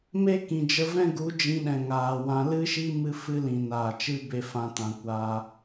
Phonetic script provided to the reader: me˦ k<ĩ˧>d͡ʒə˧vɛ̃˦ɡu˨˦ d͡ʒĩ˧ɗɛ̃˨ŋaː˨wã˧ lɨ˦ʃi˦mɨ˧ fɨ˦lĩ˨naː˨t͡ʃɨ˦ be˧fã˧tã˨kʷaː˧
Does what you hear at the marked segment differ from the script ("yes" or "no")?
yes